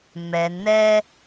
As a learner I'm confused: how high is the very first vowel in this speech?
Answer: mid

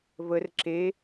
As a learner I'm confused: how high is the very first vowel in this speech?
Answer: mid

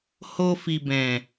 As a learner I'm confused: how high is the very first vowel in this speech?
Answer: mid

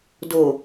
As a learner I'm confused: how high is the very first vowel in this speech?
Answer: mid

